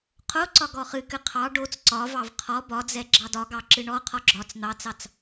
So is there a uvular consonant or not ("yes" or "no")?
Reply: yes